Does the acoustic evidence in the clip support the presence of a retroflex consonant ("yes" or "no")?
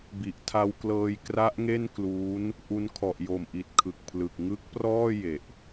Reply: no